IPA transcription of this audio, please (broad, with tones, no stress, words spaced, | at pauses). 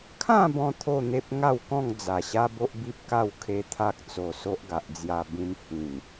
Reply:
kʰã˥˧bɔ̃˧ t̪ʰo˥˧n̪e˦p̚ŋa˥˧wkɔ̃˥˧ŋ d͡za˨˩ɕa˦ bo˦ʔbi˦p̚ka˥˧w kʰe˦t̪ʰa˦k̚ t͡so˧so˦ʔɡa˨ʔ d͡zja˧bĩ˧m hĩ˨˩ŋ